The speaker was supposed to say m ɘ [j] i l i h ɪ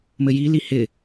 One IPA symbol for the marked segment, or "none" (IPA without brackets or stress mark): j